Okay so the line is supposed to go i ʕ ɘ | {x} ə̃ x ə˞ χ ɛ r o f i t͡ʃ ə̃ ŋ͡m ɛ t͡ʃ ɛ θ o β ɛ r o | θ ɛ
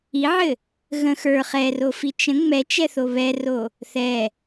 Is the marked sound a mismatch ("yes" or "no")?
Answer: yes